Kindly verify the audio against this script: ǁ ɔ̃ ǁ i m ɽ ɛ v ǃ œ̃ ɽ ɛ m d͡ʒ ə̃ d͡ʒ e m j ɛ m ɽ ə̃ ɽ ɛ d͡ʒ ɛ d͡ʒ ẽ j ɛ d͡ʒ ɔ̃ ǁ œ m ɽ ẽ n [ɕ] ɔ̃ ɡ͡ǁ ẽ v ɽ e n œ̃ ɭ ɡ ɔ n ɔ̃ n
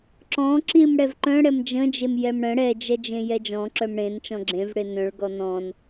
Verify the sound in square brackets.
incorrect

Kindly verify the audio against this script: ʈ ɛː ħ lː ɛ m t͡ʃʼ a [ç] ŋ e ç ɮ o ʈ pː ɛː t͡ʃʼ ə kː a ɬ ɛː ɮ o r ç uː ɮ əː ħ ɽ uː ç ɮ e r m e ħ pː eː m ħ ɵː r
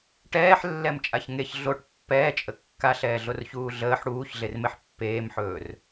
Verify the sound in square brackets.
correct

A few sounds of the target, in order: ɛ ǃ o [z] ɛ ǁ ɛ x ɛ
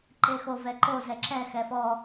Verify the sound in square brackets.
correct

